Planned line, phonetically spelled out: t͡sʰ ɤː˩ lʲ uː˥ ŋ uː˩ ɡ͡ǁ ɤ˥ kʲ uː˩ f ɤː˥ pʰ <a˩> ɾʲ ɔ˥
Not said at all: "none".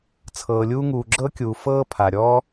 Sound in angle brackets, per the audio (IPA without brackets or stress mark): a˩